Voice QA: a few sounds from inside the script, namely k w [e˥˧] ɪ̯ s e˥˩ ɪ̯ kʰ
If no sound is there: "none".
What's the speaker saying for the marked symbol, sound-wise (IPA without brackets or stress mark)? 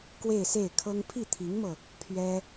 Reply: e˥˧